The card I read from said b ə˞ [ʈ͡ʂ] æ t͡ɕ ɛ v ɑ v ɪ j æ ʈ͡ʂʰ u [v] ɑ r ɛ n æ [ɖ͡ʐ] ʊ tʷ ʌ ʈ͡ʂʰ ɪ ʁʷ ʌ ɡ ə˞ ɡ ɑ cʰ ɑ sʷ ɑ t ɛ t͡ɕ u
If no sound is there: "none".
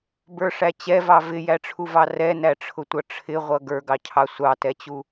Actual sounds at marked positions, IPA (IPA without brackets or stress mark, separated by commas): ʂ, v, ʈ͡ʂʰ